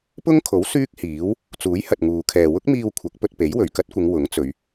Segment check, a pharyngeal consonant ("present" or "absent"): absent